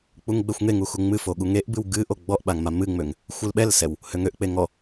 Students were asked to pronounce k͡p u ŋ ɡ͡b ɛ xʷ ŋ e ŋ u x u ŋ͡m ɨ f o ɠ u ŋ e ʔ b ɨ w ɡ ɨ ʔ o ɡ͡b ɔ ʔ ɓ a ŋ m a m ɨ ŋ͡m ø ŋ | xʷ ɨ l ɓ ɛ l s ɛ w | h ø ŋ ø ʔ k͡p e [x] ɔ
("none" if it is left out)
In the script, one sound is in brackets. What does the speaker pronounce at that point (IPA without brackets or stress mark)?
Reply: ŋ